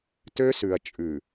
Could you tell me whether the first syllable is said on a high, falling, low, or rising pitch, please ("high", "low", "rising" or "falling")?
high